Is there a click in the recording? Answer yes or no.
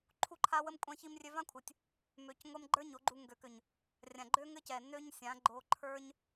yes